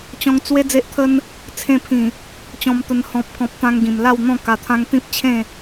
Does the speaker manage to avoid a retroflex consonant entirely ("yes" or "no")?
yes